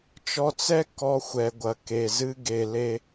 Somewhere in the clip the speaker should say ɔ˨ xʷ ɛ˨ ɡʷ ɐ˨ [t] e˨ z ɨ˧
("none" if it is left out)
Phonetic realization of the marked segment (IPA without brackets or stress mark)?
k